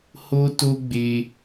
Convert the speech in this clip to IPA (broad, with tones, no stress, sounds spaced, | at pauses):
h o˦ t o˦ ɡ͡b e˧